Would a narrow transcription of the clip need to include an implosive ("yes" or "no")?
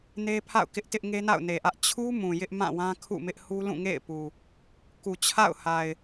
no